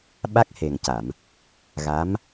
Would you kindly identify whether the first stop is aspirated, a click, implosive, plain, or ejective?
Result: implosive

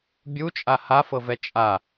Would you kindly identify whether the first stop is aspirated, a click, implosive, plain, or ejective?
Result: plain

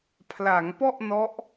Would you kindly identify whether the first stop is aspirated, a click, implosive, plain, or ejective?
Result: aspirated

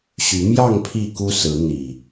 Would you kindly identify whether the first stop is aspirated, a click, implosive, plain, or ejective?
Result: aspirated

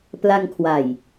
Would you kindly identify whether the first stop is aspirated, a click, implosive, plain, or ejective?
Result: plain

